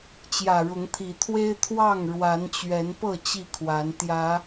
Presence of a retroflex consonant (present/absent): present